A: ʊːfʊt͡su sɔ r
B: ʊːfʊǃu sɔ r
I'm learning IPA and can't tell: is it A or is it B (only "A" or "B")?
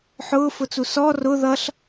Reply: A